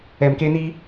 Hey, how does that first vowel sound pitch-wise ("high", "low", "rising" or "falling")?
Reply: low